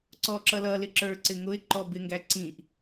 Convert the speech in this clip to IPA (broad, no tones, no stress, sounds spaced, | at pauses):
ǀ ɔ ǁ ʌ l ʌ l ɪ ǁ ə˞ ǀ ɪ ŋ ʊ ɪ̯ ǃ ɔ b ɪ ŋ ɡ æ ǀ ĩ ʔ